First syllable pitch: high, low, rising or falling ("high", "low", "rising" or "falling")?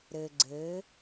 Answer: low